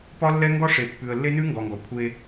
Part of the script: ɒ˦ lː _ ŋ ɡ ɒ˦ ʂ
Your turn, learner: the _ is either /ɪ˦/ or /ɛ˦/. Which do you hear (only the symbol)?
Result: ɛ˦